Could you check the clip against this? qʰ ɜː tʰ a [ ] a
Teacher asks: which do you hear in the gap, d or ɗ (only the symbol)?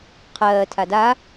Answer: d